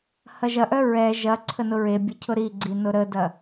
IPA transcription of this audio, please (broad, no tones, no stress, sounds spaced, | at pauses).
h ɐ ʒ ɐ ʔ œ ɹ ɛ ʒ ɐ ǀʰ ə n ʊ ɹ e bʲ ə cʰ ʊ ɾ i ɡ͡ǀ i n ʊ ɾ ə d ɐ